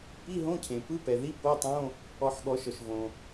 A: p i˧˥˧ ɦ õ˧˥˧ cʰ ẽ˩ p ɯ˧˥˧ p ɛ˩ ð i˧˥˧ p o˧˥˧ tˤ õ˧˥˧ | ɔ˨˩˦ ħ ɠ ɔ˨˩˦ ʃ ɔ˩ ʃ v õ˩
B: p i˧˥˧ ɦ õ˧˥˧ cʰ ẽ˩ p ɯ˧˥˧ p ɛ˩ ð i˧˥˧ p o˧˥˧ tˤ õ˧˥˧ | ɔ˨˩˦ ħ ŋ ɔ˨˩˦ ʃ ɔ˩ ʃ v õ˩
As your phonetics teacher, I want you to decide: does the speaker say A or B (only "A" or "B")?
A